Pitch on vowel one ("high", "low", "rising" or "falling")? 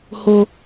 high